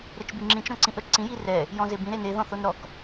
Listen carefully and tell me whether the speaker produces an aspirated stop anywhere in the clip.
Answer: no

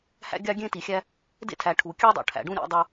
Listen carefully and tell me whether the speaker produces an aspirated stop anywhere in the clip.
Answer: yes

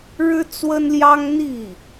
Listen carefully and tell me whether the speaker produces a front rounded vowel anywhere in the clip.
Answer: no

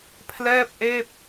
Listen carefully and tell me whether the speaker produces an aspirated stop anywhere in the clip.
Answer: yes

